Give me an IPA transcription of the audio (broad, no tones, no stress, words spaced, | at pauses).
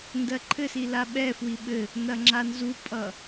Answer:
ndɜǃʰɘsi laɓɛfwi ɓɘ | nɐŋ͡ǁanzupʼʌ